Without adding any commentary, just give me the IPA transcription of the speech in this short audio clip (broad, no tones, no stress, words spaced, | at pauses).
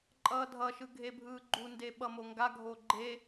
ǃʼʌːdʱʌʃɯ ɡʱebʱɯːɡ͡ǃunde ɓʌmoŋɡaɡʱo ɡ͡ǃe